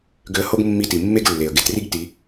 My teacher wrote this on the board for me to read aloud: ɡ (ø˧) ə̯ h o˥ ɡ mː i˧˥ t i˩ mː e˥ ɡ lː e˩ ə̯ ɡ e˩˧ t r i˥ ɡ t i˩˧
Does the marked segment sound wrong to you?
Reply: no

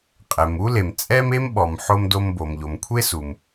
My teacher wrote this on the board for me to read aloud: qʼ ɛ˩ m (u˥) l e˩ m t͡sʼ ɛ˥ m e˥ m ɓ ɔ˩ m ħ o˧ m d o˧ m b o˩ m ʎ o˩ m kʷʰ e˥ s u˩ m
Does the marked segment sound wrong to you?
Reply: no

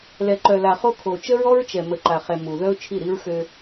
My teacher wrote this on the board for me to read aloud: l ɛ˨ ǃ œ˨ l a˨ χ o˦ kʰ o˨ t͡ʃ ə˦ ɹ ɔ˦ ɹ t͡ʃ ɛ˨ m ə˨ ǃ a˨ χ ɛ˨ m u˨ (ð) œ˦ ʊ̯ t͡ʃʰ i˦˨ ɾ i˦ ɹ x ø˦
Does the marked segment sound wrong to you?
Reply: no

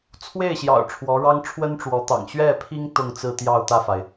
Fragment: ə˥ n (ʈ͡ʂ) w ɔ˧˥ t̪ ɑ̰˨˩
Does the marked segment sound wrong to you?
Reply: no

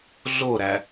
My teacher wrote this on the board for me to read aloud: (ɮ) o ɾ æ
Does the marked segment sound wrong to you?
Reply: no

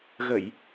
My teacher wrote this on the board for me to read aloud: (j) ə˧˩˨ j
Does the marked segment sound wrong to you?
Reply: yes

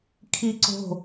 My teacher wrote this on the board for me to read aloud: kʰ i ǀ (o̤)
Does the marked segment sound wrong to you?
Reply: no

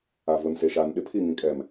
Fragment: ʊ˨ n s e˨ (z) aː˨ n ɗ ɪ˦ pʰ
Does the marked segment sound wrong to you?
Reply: yes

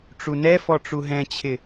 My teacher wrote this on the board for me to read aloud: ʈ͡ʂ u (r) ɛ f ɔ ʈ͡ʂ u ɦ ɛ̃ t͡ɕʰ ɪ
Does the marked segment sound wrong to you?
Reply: yes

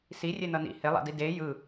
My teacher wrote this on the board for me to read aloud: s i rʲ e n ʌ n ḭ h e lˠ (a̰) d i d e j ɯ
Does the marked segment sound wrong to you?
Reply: no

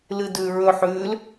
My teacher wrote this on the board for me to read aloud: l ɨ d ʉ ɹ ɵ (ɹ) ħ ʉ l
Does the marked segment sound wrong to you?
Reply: yes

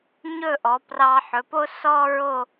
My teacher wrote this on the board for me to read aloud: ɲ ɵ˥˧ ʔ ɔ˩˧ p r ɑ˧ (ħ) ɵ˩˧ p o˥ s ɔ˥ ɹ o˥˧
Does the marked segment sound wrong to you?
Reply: no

